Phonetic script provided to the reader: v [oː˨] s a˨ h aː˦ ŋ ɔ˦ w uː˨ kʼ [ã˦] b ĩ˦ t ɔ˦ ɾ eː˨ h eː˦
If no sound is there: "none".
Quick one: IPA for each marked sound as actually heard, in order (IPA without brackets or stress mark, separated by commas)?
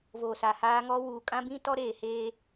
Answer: oː˨, ã˦